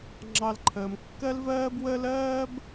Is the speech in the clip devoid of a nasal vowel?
yes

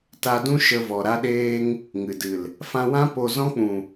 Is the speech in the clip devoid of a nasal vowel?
no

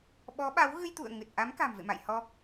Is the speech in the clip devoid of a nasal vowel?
yes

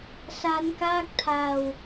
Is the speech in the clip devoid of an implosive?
yes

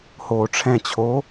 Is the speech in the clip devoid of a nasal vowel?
no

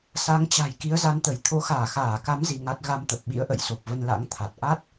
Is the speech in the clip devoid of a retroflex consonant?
yes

